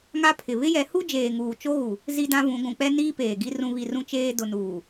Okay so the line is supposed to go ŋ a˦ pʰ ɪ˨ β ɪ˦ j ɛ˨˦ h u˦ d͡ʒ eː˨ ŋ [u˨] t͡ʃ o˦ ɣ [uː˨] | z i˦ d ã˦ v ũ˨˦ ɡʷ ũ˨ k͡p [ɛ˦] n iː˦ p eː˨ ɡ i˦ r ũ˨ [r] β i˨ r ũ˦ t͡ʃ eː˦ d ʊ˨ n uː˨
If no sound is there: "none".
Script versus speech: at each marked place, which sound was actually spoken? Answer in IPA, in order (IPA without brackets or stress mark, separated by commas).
uː˨, u˨, ɛ˦, none